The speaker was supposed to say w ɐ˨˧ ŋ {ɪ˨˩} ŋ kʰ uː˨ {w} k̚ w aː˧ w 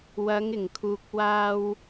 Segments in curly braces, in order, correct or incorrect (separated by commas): correct, incorrect